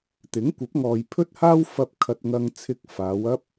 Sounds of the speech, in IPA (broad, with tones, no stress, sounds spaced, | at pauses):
t̪ ɪ˨˥ ŋ kʷ ɐ˨˥ p̚ ŋ ɔː˨ j pʰ ɵ˥ t̚ h aː˥ w f ɐ˧ p̚ kʰ ɐ˧ t̚ ŋ ɐ˧ ŋ t͡sʰ ɪ˧ k̚ f aː˨˧ w ɐ˥ p̚